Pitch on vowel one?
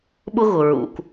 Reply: high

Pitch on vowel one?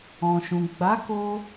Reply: low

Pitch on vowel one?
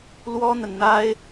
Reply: high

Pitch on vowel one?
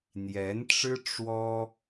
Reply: rising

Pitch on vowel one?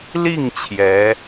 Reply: falling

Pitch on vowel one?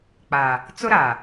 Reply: low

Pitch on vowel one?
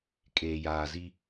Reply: low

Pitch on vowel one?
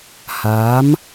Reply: rising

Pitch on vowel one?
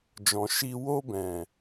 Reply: low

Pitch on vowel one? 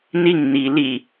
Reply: falling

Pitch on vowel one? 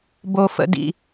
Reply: low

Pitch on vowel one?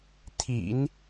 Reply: low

